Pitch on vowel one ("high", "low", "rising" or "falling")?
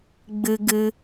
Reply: high